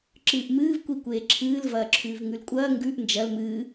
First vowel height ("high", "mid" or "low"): high